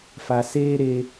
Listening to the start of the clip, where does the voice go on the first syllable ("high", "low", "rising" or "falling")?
low